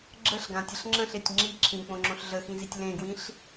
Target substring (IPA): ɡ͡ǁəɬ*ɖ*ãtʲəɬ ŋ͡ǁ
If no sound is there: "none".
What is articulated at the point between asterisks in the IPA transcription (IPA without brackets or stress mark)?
ɡ